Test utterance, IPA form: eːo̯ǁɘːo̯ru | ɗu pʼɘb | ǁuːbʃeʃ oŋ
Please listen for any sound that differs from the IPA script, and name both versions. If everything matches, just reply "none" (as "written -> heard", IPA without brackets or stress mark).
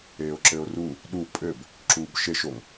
none